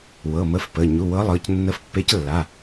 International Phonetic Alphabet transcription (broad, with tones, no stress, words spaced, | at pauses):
wɤ˩˧˩mə˧˥fpə˩˧˩ ɲu˩˧˩wɤ˧˥lˠɤ˩˧˩c nːə˧˥fpːe˧˥clːa˩˧˩